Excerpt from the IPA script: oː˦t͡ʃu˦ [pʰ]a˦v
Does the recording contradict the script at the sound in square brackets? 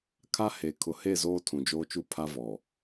no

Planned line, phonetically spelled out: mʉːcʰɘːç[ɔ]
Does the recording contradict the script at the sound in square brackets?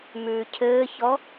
no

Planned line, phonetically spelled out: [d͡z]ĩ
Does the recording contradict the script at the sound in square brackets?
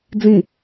no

